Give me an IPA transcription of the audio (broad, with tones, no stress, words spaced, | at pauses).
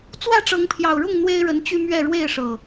t͡swä˥˨ʈ͡ʂɤ˨˦ŋpʰjɑ˨˩ʊ̯ɻʊ˥˨ŋ n̪we˦ɪ̯ɻə˨˦n t͡ɕy˦mɥɛ˥˨ ɻwe˥˨ɪ̯ʂɤ˨˩